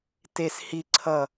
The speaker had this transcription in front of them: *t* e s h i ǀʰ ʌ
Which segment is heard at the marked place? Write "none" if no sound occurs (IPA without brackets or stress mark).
t